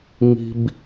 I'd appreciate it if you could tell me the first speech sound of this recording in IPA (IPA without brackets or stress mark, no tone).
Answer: ŋ